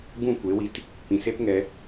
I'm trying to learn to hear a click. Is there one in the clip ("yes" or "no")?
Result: no